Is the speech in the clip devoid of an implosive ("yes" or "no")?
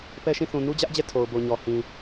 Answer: yes